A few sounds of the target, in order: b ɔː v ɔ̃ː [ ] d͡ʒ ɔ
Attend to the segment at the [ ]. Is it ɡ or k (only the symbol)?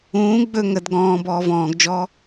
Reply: ɡ